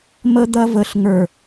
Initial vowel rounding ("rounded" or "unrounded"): unrounded